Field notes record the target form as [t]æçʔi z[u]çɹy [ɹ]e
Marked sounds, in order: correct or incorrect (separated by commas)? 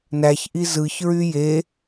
incorrect, incorrect, incorrect